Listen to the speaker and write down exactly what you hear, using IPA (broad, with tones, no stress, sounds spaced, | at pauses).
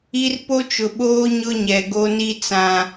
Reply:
i˦ r p o˦ t͡ʃ ʊ˨ ɓ oː˦ ɲ ʊ˦ ɲ ɛ˨ ɡ o˦ n i˦ t͡s ã˨